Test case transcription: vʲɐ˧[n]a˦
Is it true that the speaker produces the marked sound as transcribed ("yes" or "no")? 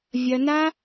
yes